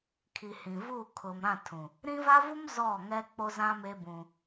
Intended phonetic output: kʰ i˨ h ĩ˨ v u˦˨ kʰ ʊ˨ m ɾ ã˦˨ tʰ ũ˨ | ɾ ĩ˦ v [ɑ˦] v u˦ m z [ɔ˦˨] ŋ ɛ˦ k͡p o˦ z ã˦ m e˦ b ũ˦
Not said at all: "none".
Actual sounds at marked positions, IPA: a˦, ɔ˦˨

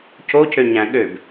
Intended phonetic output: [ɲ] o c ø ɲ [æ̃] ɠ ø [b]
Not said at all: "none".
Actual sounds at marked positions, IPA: c, æ̃, b

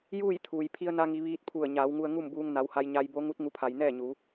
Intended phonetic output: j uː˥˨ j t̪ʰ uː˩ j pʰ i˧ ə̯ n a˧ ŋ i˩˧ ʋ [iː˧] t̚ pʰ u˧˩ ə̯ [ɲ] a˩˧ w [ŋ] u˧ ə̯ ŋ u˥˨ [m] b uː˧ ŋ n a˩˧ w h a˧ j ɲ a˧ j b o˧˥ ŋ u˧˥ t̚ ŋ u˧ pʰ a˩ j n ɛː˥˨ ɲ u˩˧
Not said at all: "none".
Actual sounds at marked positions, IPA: iː˧, ɲ, ŋ, m

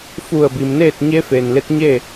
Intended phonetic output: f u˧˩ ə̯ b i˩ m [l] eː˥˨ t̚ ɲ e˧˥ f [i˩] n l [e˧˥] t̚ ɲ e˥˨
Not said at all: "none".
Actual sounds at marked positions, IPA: n, e˩, e˧˥

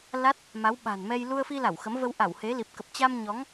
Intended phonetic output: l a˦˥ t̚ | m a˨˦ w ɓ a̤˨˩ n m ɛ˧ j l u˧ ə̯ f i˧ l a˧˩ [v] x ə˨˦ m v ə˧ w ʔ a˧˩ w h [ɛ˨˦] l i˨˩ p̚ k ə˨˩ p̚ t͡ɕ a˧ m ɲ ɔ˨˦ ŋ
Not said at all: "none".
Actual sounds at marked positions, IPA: w, e˨˦

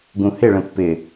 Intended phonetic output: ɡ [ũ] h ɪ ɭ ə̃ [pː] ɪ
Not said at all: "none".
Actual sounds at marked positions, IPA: ũ, pː

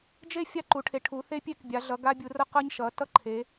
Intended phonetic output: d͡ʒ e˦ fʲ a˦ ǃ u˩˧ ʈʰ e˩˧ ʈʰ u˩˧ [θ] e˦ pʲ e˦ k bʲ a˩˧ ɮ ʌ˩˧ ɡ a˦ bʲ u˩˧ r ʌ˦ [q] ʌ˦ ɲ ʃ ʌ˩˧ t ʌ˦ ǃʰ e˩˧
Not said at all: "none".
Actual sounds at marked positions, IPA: θ, q

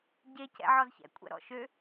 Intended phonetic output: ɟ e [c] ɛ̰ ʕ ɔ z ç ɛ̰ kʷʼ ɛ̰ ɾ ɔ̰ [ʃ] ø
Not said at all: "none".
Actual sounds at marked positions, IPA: c, ʃ

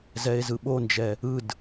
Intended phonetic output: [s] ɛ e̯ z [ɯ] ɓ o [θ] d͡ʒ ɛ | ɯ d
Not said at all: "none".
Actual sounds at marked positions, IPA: z, ɯ, n

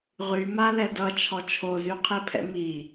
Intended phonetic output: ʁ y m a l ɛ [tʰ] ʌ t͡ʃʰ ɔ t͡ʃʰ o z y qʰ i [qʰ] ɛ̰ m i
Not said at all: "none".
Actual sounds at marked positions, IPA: d, pʰ

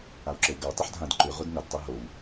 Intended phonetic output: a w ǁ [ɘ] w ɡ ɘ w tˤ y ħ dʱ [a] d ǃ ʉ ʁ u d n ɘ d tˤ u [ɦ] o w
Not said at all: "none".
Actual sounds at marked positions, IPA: ɘ, ã, ɦ

